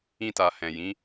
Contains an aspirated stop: no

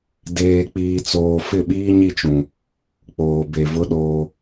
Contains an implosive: yes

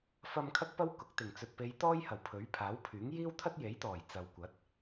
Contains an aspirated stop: yes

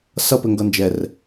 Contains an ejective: no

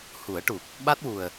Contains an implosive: yes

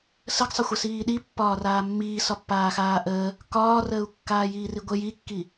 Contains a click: no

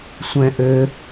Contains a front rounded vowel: yes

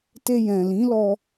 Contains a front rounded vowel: no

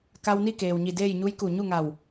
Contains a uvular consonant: no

